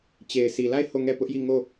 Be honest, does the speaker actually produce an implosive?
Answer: no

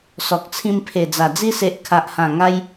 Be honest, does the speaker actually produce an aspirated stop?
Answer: yes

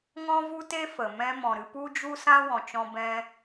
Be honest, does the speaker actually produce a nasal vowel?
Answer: yes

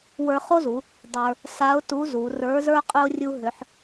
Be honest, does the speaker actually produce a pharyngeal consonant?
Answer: yes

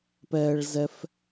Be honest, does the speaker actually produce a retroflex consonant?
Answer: yes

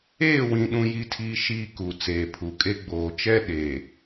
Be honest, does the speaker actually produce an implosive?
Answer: yes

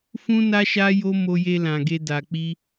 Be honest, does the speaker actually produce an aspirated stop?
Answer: no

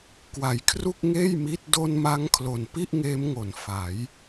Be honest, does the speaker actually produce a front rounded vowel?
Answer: no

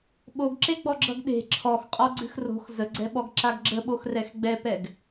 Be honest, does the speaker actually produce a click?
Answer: yes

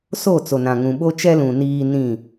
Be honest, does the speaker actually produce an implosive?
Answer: yes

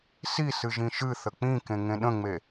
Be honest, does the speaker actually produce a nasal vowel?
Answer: yes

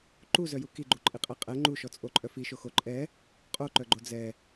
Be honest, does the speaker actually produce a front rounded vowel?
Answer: yes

